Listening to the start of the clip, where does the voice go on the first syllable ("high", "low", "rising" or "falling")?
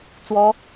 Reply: high